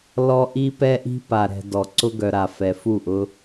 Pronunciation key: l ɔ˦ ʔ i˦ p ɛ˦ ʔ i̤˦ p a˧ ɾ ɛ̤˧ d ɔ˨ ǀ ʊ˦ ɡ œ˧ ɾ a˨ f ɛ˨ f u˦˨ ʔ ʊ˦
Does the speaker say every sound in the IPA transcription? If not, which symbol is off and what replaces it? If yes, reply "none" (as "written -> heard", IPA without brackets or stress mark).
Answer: none